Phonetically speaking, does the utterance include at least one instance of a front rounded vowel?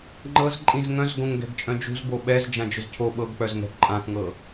yes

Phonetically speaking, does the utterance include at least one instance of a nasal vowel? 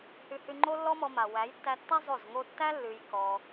no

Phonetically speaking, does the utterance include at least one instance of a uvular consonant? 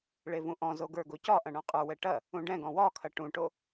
yes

